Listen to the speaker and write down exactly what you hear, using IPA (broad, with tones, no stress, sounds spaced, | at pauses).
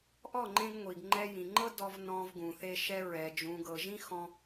ʔ ɔ˦˨ ŋ͡ǃ ẽ˧ ɡ ŋʷ i˨ ɡ ŋ͡ǃ ɛ˧ j ĩ˨ ŋ͡ǃ ɤ˦ d ɔ˧ v n ɔ̃˧ v ɡ ũ˨ θ e˧ ʃ ɛ˧ ɹ ɛ˨ d͡ʒ ũ˨ ɡ ɤ˨ ʒ ĩ˦ x ɔ̃˧